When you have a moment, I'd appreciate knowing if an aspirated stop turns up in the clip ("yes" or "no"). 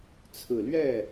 yes